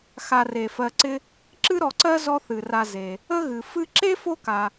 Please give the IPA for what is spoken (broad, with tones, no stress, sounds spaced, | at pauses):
x a˨ r e˩ f ɜ˨ ǀ ɪ˦ | ǁ ɨ˥ ɾ ɔ˨ ǀ ɜ˥ z ɔ˦ θ ɨ˩ r a˨ z e˩ | ə˥ ɣ ɨ˩ f ɨ˥ ǁ e˥ f o˦ k a˩